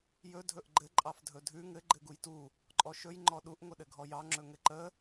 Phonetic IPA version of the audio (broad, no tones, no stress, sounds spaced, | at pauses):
j ɵ dʱ ɵ ʔ ɡ͡ǃ ɘ ǃʼ ɑ f dʱ ɵ dʱ ʉ ŋ ɘ ɡ͡ǃ ɘ ɡ u j t u | ǃʼ ɔ ʃ ɵ j ŋ͡ǃ ɔ ɗ u ʔ ŋʷ ə ɗ ɘ ɡʱ ɔ j ɑ ŋ͡ǁ ɵ ŋ ɘ ǃ ə